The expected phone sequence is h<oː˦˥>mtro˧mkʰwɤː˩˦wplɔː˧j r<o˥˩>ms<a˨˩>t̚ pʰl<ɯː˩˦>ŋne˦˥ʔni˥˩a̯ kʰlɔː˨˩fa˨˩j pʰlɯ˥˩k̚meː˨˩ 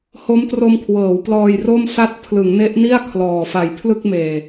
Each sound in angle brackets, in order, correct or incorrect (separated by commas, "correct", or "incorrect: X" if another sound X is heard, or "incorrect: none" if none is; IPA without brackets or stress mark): incorrect: o˦˥, correct, incorrect: a˥˩, incorrect: ɯ˩˦